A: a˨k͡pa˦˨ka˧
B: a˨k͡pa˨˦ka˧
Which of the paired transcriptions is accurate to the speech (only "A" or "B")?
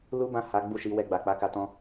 B